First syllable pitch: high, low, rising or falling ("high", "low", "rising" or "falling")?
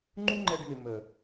high